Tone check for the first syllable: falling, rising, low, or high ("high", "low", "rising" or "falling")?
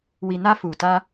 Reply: low